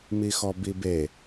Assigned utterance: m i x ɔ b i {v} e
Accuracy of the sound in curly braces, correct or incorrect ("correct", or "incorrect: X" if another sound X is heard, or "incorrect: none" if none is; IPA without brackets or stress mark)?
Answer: incorrect: b